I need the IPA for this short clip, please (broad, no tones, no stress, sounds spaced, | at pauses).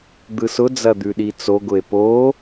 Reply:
d̪ ɯ s ʊ d͡z ɐ d̪ ʉ ɗ i t͡s o ɡ ʊ e̯ p o